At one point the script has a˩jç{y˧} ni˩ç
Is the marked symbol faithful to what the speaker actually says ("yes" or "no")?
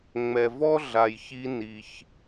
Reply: no